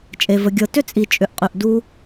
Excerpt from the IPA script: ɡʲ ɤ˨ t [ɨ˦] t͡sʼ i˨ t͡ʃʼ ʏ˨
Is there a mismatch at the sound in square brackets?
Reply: yes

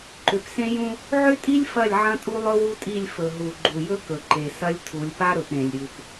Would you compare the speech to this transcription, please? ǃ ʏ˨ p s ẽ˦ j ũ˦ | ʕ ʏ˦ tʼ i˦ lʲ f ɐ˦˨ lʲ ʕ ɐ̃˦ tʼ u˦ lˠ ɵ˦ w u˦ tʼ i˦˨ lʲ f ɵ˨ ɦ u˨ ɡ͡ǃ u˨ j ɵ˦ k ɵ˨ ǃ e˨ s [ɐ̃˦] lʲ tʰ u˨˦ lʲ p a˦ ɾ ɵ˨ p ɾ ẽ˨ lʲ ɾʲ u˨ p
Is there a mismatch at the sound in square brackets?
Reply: yes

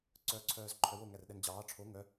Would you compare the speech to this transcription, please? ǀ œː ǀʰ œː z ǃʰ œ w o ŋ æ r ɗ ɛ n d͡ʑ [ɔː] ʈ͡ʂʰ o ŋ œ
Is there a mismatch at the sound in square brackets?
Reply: yes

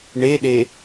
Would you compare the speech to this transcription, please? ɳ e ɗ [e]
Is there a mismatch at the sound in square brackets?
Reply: no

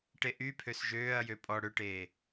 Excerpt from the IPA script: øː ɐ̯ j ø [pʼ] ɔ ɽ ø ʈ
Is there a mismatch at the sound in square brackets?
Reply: no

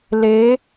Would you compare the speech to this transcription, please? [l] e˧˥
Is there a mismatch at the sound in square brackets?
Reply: no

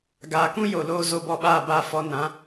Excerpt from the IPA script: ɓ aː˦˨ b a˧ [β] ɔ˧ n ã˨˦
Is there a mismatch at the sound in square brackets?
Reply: yes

